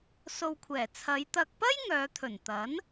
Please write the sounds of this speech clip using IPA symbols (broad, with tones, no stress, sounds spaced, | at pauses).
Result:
s o˨ w kʷʰ ɛː˨˩ t͡sʰ ɐ˨˧ j t̪ ɐ˨ k̚ p ɐ˥ j ŋ œː˨˧ t̪ʰ ɵ˨˩ n t̪ ɐ˨˥ n